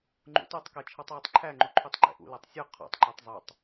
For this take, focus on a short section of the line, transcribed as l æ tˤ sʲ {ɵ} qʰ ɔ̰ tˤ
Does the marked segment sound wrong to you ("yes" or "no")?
no